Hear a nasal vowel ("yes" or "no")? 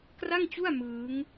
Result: no